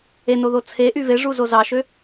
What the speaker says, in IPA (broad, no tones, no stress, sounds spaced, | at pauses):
e n o ð o t͡sʰ e ʔ y v e ʐ u z o z ɑ ʃ ø